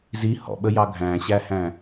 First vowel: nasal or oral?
oral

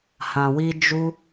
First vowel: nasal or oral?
nasal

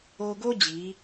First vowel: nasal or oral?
oral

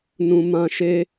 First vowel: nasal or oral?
nasal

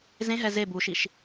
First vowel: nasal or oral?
nasal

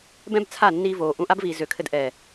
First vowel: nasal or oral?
nasal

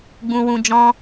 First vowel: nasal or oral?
nasal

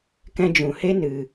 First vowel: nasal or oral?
nasal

